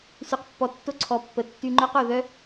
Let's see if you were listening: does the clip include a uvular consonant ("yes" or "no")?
yes